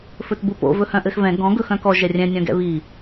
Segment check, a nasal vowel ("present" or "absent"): present